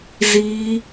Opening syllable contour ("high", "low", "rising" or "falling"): high